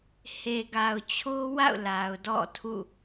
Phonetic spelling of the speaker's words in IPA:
h e˨ ɡ a˨ ʊ̯ t͡ɕʰ o˦ w a̰˦˨ ʊ̯ l a˨ ʊ̯ d ɔ̰˦˨ tʰ ṵ˦˨

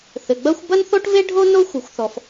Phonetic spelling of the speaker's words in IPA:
θ ɘ˩ ɡ͡b ɐ˥ xʷ b ɐ˥ n θ o˥ ʈ v e˥ ɖʱ o˥ n o˥ xʷ ɨ˩ xʷ θ ɔ˩ f

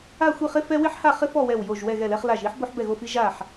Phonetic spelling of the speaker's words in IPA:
a˥˧ xʷ i˥˧ χ ɪ˥ f ɛ˥ w ɪ˥ ħ h a˥˧ χ ɪ˥ f ɔ˥˧ w ɛ˥˧ w j o˥˧ ʒ w ɛ˥˧ ɣ ɛ˥˧ l ɛ˥ χ l a˥˧ ʒ i˥ ħ b o˥ ħ b ɛ˥˧ ɣ o˥˧ f i˥ ʒ a˥˧ ħ

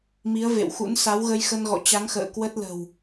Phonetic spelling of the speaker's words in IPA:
m i˨˦ ə̯ v ḛ˧˨ w x ṵ˧˥ n s a˨˦ w ɣ ə˧ j x ə˧ n ɣ ɔ̰˧˨ t͡ɕ a˨˦ ŋ x ə̰ː˧˨ k w ə˦˥ t̚ l ə̤˨˩ w

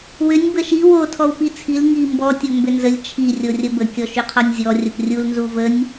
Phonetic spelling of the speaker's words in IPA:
w ʏ nʲ b ə ʃ i w o tʰ ɔ w p i t͡sʰ i l ŋ i m b ɔ tʲ o m b ʏ n z ə lʲ t͡ʃʰ i rʲ o rʲ ə b ə kʲ ɔ ʃ ʏ qʰ ɔ nʲ zʲ ɔ rʲ ə p rʲ u l n z u v ə nʲ

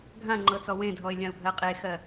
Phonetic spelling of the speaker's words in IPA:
ɡʱ ã ŋ͡ǃ ɤ t͡s ɔ w ẽ dʱ ɔ ɪ̯ lʲ ã ʊ̯ bʱ ɜ qʼ e x ɜ

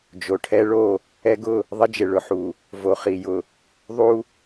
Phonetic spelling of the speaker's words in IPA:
d͡ʒ o˨ ʈʰ ɛ˦ ɭ o˦˨ | ɛ˦ ɡ ʊ˦˨ | ðˤ ɪ˦ d͡ʒ ɪ˨ ɭ ʊ˨ ħ u˨ | v o˨ χ i˨ j ʊ˨ | ðˤ u˦

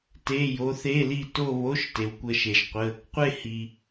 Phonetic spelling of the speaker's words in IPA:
t e˧˥˧ j o˧˥ θ e˧˥˧ l i˥˧ t o˥˧ β o˧˥˧ ʃ t e˨ w kʷ ə˥˧ ʃ e˨ ʒ qʷ ə˧˥˧ | qʷ e˥˧ h i˨

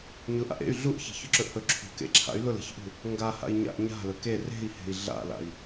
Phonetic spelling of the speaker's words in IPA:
ɲ ʊ ʔ a̰ ʔ ḛ y̯ ɮ u ʔ ç e̤ ç ʊ ǁ ɵ ʔ h ɵ ǁʰ ṳ k ḛ ǁʰ a̰ y̯ l ʊ l e̤ ç ʔ ṳ | ŋ ɡ a h a̰ i̯ ɲ a̰ ʔ ɲ a̤ l ɵ k e r e̤ i̯ h e̤ i̯ ɮ a̰ l a̰ i̯

